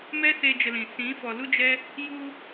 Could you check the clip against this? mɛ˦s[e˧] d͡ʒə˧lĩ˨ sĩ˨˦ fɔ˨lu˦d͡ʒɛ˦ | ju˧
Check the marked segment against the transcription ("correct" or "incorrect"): correct